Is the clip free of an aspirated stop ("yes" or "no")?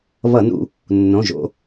yes